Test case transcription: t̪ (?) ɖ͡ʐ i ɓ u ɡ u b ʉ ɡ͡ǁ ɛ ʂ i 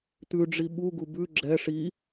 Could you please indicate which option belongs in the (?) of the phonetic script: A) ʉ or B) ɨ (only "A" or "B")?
A